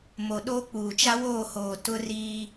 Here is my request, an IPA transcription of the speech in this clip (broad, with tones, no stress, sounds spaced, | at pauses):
m o˨ ɗ o˦ k͡p uː˨ t͡ʃ a˦ w oː˦˨ h oː˨ t ʊ˦ r iː˦